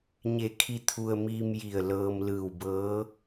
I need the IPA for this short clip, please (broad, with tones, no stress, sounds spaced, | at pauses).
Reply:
ɲ e˧˩ kʰ i˧ t̪ʰ u˧ ə̯ m iː˧ m j i˧˩ ə̯ l ɤː˧ m l ɯː˧˩ w b ɤː˧˥